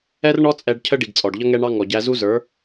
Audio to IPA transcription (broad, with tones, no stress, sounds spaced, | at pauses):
ɛ˦ r ɳ ɔ˦ t͡sʼ ɛ˧ ɖ cʰ ə˦ ɖ i˨ ɡ t͡sʼ ɔ˨ ɖ ʎ ʌ˦ ŋ ɛ˦ ɳ ɑ˦ ŋ ɔ˨ ɟ æ˧ z u˦ z ə˞˨˦